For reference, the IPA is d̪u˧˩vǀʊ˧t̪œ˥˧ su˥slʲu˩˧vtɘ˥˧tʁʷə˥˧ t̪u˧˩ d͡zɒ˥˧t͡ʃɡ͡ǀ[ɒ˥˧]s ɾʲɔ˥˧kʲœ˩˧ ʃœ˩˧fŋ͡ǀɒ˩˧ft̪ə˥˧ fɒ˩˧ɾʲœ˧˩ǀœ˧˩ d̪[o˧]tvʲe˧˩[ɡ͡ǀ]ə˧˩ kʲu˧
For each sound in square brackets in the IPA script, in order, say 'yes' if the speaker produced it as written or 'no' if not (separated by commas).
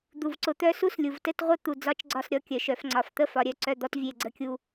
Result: yes, no, yes